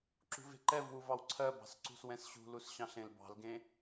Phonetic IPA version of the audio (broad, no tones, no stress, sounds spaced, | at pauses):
ǁ ṳ v e̤ ǃ ɛ v w u v ɑ w ǀʰ ɜ b ɑ̤ s ǀ ṳ s w ɛ̃ s ɕ ṳ l u s ɕ ɑ̃ ɬ ẽ l b ɑ̤ l ɡ ẽ